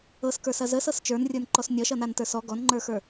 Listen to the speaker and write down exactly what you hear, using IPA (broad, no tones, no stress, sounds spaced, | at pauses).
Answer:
ɤ s k ə˞ s ɐ z ə s ɤ s t͡ʃ ə˞ n rʲ ə˞ n ǃ ɔ s nʲ ʌ ʃ ʌ n a n t ə˞ s ɔ ɡ ɔ n ŋ͡ǃ ə˞ x ə˞